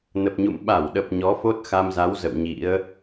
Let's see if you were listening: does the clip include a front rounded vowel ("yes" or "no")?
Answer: no